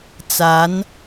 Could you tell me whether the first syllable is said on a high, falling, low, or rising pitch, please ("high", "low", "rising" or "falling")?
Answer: rising